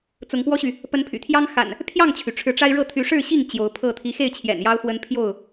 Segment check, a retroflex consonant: present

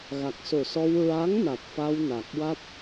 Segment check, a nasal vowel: absent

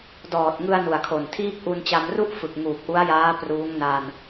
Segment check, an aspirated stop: present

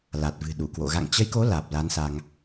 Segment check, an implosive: present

